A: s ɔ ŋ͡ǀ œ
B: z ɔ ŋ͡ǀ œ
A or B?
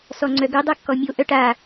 A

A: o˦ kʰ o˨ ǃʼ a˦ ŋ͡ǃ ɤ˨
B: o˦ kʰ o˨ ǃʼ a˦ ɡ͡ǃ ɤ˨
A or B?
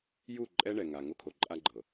B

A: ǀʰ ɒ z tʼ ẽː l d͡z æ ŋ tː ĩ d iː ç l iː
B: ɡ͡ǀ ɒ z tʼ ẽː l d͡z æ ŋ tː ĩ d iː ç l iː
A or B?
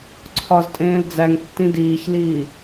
A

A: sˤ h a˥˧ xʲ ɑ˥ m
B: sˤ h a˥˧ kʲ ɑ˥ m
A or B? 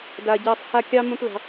B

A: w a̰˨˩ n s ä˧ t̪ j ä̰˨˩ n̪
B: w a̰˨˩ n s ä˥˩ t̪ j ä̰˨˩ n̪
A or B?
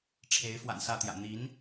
B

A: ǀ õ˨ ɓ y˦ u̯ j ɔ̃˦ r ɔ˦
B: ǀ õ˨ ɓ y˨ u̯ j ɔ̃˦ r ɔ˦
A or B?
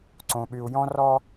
B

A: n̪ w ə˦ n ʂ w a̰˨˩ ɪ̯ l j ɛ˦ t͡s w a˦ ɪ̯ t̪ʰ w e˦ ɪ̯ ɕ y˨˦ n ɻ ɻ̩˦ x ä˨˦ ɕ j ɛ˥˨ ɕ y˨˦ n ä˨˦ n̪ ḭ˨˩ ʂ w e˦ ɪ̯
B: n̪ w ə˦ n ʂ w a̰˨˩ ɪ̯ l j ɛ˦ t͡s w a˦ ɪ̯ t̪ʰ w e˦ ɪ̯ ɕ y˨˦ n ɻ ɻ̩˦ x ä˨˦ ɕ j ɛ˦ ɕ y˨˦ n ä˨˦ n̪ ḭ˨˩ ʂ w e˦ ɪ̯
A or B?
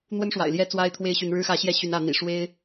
B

